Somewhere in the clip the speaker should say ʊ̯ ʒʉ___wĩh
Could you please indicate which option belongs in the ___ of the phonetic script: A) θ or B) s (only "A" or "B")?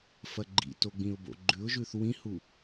A